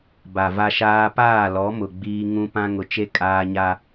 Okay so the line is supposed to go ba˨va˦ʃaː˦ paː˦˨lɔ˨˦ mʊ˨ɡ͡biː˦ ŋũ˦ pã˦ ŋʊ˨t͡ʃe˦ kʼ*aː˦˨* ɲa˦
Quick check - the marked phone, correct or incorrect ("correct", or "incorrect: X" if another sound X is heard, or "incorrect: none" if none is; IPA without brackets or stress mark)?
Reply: incorrect: aː˦